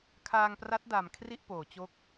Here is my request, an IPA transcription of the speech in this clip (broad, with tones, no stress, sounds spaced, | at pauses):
kʰ aː˧ ŋ p r a˦˥ t̚ d a˨˩ m kʰ r i˥˩ ʔ p oː˩˦ t͡ɕ o˦˥ k̚